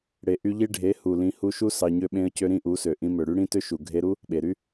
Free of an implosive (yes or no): no